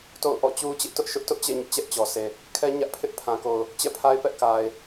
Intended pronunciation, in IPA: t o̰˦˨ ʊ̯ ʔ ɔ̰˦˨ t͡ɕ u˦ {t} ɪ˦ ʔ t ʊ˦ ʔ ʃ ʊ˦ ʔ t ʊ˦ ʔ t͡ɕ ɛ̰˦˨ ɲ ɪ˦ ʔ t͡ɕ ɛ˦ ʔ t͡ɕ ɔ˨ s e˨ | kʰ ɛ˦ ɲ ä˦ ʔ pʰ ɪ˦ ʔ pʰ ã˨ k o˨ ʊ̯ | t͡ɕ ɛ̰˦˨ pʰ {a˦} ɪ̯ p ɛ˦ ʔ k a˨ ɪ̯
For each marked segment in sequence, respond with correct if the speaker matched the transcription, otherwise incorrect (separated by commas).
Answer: incorrect, correct